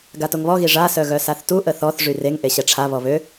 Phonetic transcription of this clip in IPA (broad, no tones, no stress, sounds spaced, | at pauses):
ɡ a t o ŋ β ɔ ɣ i ʐ a s œ ɣ œ s a θ t u ʔ ə θ ɔ θ ʐ y r e ŋ ʔ e ɕ ɛ ʈ͡ʂʰ a β ɔ β ø